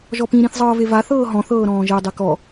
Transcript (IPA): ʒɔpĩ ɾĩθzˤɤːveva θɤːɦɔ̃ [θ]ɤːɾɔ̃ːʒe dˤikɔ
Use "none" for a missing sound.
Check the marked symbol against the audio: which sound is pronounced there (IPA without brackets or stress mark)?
θ